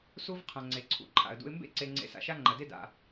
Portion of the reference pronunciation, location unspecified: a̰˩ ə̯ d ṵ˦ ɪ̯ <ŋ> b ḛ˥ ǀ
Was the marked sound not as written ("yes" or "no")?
yes